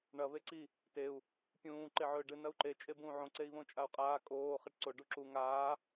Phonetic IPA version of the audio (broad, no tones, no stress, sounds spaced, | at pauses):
ɳ ɐ β e ǀ i | t e u̯ | pʲ ũː ǃ e ʕ ɵː ɖ ɨ n ɐ u̯ ǃ e t͡ʃʼ e b ũː ʕ õ ǀ e i̯ β õ t͡ʃʼ a u̯ qʼ aː kʼ oː χ e ʈ ǀ o ɖ u ǁ u ŋ aː